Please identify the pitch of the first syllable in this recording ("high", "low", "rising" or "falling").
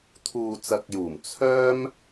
low